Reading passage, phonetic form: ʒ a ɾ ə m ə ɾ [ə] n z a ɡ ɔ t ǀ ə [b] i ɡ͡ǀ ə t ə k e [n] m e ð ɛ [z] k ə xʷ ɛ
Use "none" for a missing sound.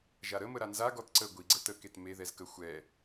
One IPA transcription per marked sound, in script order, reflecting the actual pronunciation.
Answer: a, ɡʷ, t, z

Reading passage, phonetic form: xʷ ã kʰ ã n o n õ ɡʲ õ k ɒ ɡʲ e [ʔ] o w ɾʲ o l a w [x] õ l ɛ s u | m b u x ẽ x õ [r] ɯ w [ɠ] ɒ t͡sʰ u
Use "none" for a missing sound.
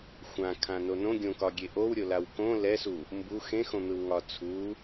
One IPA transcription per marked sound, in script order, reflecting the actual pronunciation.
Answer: ʔ, k, n̪, ŋ

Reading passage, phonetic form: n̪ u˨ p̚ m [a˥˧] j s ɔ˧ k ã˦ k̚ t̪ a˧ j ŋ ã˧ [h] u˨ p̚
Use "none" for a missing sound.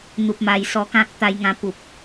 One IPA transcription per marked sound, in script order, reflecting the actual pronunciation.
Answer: a˨˩, p

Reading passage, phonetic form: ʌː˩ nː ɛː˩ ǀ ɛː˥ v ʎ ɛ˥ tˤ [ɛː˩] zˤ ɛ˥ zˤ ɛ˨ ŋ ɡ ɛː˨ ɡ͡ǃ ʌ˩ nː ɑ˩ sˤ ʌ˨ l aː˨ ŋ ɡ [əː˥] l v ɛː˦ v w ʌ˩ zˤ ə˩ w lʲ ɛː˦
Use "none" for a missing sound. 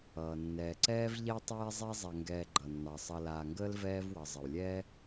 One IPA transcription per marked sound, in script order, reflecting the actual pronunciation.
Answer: ɛː˥, əː˥

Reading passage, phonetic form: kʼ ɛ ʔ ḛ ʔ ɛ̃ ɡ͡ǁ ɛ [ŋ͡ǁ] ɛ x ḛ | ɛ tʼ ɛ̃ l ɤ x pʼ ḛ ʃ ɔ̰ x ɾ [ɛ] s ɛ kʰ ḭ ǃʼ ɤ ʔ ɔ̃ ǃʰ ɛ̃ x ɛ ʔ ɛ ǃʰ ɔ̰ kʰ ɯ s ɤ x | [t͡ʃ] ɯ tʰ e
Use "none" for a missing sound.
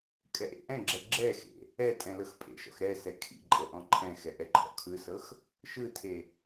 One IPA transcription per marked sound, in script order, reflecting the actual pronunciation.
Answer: ɡ͡ǁ, ɛ, ʃ

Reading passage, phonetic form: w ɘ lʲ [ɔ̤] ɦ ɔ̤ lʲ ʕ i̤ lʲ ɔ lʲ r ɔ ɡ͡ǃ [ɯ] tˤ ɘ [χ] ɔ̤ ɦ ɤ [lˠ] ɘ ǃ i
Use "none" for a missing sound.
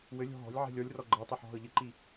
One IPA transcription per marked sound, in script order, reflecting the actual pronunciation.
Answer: ɔ̤, ɤ, ħ, ʎ

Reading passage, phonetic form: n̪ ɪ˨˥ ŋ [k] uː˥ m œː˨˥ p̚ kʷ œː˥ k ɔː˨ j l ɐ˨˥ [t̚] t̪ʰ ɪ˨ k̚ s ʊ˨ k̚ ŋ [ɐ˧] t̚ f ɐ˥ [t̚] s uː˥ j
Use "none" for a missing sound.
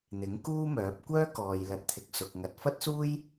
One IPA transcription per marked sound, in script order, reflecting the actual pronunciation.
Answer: k, t̚, ɐ˨˥, t̚

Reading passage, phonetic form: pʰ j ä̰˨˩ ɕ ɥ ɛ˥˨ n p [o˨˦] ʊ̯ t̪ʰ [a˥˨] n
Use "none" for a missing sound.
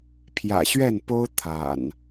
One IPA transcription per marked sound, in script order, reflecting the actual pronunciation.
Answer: o˦, a̰˨˩

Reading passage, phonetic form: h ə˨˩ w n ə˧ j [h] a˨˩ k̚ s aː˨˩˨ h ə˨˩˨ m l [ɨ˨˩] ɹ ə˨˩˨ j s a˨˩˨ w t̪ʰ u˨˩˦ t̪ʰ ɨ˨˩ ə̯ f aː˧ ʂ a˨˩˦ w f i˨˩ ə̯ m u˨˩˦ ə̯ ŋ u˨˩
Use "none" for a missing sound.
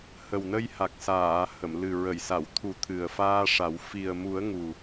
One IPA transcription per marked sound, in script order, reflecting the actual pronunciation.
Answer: h, ɨ˨˩

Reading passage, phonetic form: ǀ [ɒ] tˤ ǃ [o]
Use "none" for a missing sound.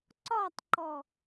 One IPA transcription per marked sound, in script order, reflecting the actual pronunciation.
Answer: ɒ, ɔ

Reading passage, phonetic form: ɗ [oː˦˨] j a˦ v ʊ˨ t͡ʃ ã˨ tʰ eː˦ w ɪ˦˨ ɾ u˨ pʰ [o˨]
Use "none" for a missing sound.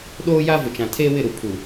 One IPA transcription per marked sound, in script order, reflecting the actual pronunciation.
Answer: oː˦, u˨

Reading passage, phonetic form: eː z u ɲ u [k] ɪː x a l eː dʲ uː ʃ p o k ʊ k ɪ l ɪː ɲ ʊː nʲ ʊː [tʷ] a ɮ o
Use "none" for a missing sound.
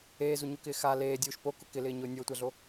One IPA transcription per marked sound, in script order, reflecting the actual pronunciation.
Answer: k, tʷ

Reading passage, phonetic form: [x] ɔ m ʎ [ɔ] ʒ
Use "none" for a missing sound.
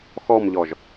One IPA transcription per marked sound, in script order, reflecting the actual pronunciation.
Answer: x, ɔ

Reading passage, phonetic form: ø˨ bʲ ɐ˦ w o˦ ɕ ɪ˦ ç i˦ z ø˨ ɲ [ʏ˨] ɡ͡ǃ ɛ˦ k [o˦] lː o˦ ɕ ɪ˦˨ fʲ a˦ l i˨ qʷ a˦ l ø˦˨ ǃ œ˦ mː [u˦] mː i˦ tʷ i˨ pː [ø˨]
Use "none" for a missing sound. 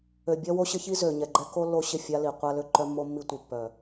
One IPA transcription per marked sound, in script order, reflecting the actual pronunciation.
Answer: ɛ˨, o˦, o˦, œ˨

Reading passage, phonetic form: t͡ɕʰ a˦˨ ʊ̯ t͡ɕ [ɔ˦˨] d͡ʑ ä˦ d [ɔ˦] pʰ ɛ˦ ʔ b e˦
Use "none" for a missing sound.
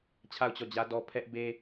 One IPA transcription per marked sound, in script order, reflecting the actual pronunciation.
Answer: ɔ˦˨, ɔ˦

